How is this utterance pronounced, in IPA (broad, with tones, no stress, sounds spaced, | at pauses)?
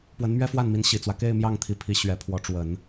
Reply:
p w ə˧˥ n m ɥ ɛ˥ f w a˥˩ n m i˧˥ n ɕ i˨˩ t͡s w ä˦ k e˥˧ ɪ̯ m j ɑ˥˩ ŋ t̪ʰ i˧˥ pʰ i˧˥ ɕ ɥ ɛ˧˥ pʰ w ɔ˧˥ ʈ͡ʂ w ə˨˩˦ n